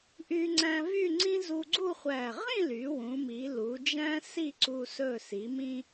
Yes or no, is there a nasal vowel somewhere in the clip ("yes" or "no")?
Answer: yes